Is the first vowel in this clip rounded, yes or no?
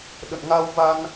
no